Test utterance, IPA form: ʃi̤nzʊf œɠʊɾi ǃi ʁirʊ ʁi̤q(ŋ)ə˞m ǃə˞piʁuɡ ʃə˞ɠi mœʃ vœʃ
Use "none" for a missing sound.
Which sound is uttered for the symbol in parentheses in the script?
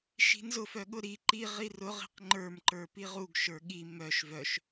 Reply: ŋ͡ǃ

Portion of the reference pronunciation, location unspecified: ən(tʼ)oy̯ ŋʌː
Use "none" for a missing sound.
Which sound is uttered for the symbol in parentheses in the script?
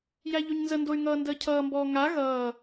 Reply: d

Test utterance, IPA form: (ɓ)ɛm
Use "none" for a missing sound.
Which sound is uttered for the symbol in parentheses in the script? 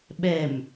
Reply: ɓ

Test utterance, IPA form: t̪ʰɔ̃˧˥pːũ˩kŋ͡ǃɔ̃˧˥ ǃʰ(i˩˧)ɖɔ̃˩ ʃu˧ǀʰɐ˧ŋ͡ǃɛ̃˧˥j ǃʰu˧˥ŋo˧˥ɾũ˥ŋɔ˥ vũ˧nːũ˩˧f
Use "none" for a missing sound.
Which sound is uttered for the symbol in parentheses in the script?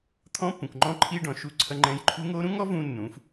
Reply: i˧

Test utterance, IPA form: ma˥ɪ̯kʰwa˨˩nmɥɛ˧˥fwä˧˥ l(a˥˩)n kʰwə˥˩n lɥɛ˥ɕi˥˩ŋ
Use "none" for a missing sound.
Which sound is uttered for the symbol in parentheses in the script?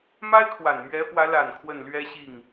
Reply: a˨˩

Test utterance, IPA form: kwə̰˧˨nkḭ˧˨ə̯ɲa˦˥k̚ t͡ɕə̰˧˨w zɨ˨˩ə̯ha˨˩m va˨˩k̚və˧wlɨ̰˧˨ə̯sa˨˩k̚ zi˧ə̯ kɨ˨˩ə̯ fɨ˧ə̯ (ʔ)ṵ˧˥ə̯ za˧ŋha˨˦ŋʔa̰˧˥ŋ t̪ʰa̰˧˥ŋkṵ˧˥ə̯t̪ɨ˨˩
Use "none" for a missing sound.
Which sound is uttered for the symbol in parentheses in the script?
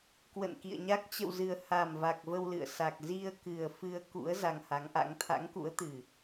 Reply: k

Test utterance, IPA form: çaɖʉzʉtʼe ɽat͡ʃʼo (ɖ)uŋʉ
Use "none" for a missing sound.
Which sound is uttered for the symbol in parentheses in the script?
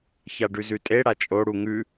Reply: ɽ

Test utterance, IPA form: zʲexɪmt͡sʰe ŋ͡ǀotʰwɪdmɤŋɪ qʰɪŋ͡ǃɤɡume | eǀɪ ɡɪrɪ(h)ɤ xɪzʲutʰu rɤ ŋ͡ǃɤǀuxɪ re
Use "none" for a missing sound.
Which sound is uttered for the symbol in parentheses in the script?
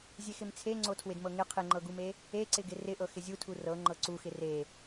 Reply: ʔ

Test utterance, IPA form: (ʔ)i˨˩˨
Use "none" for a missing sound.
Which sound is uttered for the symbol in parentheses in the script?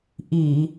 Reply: ʔ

